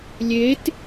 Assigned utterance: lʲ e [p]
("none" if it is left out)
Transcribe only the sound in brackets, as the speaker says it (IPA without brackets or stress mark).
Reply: t